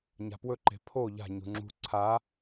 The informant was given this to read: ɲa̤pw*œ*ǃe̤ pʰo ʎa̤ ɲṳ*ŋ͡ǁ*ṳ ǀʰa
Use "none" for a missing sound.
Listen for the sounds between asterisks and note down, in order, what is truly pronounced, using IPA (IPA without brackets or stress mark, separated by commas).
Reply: ɵ, ŋ͡ǁ